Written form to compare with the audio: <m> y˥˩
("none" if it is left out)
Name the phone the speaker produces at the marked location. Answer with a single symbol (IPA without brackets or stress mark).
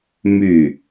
m